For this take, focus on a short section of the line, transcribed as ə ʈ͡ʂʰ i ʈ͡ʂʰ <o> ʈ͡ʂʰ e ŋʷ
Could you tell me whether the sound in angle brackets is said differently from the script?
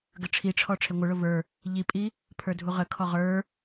yes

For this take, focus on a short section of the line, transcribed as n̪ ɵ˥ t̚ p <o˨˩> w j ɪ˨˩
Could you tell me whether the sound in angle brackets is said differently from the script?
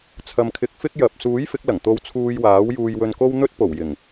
no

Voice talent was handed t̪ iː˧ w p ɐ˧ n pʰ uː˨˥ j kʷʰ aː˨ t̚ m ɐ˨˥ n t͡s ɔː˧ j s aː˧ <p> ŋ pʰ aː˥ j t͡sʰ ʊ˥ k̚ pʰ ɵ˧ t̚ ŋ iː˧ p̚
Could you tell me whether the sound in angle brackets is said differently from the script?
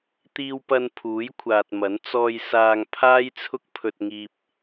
yes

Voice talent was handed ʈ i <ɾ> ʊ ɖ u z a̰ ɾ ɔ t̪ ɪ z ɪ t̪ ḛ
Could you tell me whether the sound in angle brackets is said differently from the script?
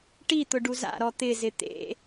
yes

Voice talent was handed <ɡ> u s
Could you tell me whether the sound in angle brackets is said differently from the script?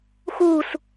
yes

